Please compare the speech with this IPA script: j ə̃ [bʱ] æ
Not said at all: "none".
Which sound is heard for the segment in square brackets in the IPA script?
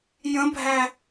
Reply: bʱ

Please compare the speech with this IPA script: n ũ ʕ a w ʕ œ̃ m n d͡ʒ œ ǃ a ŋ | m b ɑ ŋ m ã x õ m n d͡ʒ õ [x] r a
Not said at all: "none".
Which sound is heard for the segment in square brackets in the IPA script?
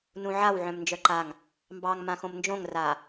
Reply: ŋ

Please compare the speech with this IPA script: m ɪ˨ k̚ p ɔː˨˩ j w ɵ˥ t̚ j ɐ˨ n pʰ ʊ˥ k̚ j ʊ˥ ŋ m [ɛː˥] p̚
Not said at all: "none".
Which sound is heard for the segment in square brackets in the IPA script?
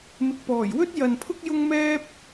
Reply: ɛː˥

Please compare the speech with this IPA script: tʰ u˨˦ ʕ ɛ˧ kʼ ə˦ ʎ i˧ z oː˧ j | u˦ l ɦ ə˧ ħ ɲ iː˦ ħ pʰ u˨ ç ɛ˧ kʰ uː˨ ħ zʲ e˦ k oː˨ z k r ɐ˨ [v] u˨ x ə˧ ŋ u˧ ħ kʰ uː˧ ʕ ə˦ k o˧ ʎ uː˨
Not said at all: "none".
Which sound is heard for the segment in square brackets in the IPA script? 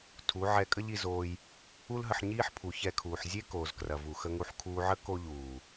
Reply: v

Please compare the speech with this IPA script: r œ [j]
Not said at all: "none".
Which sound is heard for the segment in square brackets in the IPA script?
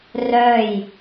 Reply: j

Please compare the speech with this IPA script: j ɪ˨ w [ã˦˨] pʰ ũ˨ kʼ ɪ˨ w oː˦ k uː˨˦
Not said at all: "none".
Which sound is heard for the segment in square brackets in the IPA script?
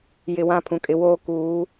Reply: ã˦˨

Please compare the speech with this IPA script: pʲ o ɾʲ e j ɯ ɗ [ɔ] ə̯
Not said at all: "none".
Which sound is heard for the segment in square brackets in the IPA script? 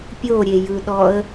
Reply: ɔ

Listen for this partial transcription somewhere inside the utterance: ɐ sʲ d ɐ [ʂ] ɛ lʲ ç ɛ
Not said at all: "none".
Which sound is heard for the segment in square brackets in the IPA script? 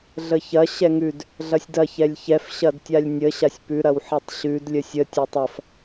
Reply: ç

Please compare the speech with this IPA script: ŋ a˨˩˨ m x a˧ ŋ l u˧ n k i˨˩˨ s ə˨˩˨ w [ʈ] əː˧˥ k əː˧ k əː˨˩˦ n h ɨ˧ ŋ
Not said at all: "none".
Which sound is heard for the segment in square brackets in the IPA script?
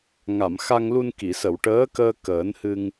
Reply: ʈ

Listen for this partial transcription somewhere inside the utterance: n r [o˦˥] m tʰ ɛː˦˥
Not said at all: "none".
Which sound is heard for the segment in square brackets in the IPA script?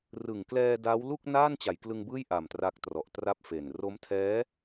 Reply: o˦˥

